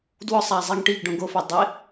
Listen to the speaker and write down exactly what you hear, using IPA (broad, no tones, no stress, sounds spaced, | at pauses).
d w ʊ sˤ a zˤ i ŋ ʈ i ɡ ɖ õ ɡ o f ɛ dˤ ɪ